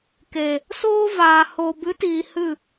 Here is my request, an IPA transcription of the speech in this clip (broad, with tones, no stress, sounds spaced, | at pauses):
k e˨ | s oː˦ v aː˨ h o˨ b ɨ˨˦ t iː˨ h ɨ˦˨